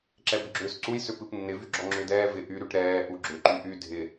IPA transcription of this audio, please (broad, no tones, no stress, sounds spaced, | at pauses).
ǁ ɛ b ʏ ɡ͡ǁ ʏː s ǀ u j s ʏ p ɨ p nː ɪ v y ɡ͡ǁ ɔ ŋ͡ǁ ʏː d ɛː v ɪ ʔ y ɾ y ʈ ɾ ɛː ʔ u ɡ͡ǁ ʏ ǃ y ʔ y dʱ ɪ